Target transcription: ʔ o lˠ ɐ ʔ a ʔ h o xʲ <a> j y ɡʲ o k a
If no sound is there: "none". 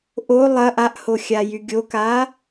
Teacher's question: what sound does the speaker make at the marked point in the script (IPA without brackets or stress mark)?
a